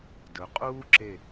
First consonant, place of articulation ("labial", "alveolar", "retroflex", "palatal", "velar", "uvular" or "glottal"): alveolar